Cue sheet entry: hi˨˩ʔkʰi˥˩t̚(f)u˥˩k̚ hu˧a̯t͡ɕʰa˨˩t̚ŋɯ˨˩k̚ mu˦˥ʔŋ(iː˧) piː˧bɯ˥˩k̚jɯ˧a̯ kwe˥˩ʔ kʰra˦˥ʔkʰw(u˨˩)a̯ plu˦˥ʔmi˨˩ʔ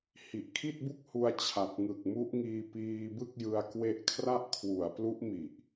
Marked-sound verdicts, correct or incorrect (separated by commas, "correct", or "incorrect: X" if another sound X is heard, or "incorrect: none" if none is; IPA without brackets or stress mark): incorrect: b, correct, incorrect: u˩˦